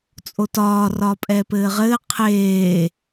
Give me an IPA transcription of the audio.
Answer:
t͡sʼotɒː rɒpʼɛːpɘːʁɘː qʰeː

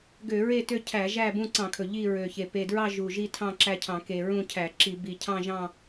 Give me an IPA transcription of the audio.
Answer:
ɡø˧˩˧ɹe˦˨ tø˦˨cʰæ˧˩˧ʒæ˦˨ bũ˦˨ǀɑ̃˧˩˧kʰɵ˨˩ ʎi˦˨ɹø˨˩çe˨˩ pe˨˩dɹɑ˦˨ ʒu˨˩ʒi˦˨tʰɑ̃˦˨ ǁæ˦˨cʰɑ̃˧˩˧ke˨˩ ɹũ˦˨cʰæ˧˩˧ǁi˧˩˧ bi˨˩cʰɑ̃˦˨ʒɑ̃˦˨

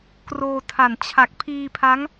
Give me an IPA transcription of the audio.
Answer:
kroː˧ tʰa˨˩n t͡ɕʰa˨˩k̚ pʰiː˧pʰa˦˥ŋ

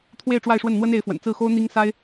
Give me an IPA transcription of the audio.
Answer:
t̪ʰwe˥˧ɪ̯ʈ͡ʂwa˥˧ɪ̯ʂwə˥˩n n̪wə˥ne˧˥ɪ̯fwə̰˨˩n t͡sɹ̩˥˩xo˥ʊ̯ n̪i˥ŋ sa˥ɪ̯

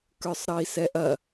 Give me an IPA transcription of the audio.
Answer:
kə˞sˤɾʌi̯sɛʔɐ

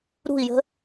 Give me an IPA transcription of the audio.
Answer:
ɾṳi̯jə̤

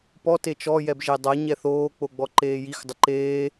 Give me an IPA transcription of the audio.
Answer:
pɔ tet͡ʃɔ jɛbʒedˤa ɲɛθoː k͡poɡ͡bɔǃeːjix dˤɪǃeː

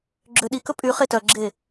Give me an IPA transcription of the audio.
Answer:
ɡ͡ǁøɗikɵ pʼy χetœɡ͡ǁe

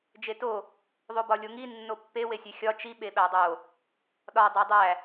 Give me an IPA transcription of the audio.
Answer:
d͡ʒeto | ðˤobɒlʲoŋi nːopːe wesʲexʲɒ t͡ʃi ɓeɓædˤo | ɗɒ dˤædˤæ

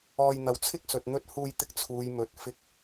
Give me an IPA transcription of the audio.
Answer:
ɔː˧jn̪ɐ˨˧wt͡sʰɪ˥k̚ sɵ˨t̚n̪ɵ˧t̚ huː˧jt̪ɪ˧k̚ t͡sʰuː˨jmɵ˨t̚ fɪ˨˥k̚

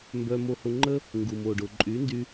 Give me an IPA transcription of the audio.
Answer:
mbœ˧mo˧hʊ˧ŋ͡ǃə˥ | ŋɡu˩mo˩ɖʊ˩ ǃʼy˩˥ndy˧

